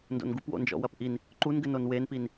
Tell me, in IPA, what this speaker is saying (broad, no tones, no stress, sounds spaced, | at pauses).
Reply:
n d o̰ n ɡ u p w o̰ n d͡ʒ ɔ̰ w ɐ p ʔ i n | ǃ u n ɡ ɘ n o n w e n p i n